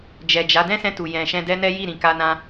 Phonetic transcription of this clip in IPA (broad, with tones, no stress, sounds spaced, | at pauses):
d͡ʒ ɛ˨ d͡ʒ a˨˦ d ɛ̃˦ s ɛ̃˧ t u˨ j ɛ̃˨ ʃ ɛ̃˧ d ɛ˦ n ɛ˦ j i˦˨ ɾ ĩ˨ k a˧ n ã˧